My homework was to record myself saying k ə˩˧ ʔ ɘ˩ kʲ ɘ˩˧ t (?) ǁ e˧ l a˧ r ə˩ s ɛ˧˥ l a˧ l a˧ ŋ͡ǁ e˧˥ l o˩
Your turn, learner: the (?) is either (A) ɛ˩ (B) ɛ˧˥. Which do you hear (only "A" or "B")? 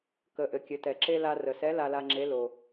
A